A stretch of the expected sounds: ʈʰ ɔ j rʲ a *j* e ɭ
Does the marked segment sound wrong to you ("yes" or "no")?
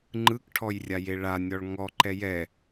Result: no